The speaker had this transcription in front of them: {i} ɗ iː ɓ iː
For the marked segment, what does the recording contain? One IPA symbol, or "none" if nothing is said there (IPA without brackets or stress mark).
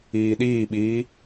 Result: iː